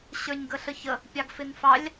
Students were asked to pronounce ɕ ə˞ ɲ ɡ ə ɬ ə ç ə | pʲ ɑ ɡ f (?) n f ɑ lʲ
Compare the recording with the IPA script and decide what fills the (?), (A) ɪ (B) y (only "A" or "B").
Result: A